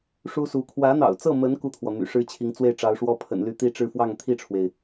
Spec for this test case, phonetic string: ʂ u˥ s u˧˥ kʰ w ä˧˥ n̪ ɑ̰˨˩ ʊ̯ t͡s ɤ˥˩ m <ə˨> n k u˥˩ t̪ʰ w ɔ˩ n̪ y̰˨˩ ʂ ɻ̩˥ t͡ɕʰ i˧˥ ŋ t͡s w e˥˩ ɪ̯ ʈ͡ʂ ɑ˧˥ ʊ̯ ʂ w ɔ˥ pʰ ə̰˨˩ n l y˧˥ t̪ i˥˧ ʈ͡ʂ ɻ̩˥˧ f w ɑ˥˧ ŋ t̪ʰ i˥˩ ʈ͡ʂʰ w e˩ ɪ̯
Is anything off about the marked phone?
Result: yes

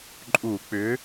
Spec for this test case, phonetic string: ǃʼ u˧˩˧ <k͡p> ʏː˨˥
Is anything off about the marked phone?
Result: no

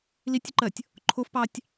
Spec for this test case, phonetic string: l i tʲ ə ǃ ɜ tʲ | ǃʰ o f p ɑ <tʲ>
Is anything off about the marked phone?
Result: no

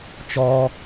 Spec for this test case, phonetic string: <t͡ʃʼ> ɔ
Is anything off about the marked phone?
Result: yes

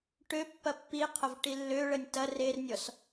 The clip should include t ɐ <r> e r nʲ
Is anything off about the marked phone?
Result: no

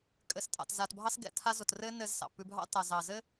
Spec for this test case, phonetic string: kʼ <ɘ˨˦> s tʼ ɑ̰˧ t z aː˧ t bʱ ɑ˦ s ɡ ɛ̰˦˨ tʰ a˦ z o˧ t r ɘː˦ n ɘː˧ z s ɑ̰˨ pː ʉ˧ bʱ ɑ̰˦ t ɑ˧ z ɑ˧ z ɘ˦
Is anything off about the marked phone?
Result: yes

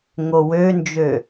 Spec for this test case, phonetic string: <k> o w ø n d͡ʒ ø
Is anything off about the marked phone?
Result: yes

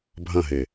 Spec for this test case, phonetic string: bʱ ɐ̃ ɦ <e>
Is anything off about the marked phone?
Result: no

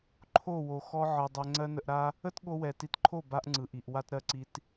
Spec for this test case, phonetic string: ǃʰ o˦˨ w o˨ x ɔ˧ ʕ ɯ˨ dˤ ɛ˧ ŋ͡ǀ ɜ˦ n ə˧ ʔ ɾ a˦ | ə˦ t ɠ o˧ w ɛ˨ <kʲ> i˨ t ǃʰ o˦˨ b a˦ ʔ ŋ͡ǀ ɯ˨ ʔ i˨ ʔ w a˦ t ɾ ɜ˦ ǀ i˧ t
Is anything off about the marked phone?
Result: yes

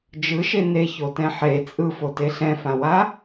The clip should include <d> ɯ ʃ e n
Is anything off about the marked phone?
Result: yes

